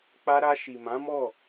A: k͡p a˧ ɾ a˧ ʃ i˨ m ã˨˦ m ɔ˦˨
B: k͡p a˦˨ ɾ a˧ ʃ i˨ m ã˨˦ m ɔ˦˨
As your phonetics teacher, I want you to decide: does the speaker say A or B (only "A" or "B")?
A